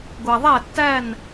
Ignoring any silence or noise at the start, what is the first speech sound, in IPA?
ɡʷ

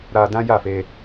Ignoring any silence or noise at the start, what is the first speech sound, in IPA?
ɾ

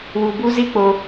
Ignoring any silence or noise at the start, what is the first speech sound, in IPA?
w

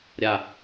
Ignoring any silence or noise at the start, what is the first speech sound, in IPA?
ɾʲ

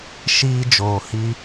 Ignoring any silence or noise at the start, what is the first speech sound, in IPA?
ʃ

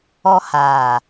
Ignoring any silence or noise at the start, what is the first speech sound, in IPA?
ɔ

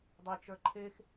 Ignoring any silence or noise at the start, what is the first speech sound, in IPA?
dˤ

